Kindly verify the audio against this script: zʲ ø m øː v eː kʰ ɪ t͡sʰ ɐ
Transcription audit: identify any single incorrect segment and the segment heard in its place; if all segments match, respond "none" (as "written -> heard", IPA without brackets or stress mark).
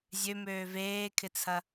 none